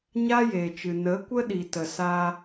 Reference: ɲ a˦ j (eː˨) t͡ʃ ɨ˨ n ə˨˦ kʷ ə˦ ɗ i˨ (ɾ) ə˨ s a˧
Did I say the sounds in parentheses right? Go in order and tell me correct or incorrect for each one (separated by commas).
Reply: correct, incorrect